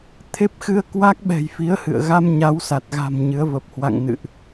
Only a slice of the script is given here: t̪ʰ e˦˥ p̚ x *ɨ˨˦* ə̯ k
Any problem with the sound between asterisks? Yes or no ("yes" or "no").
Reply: yes